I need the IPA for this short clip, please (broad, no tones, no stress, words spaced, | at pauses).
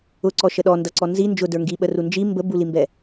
ʊǀɔʃə ɗɔndʌǀɔ nzi nd͡ʒʊdə˞ ŋɡiɓəru nd͡ʒi mbəbulimbɛ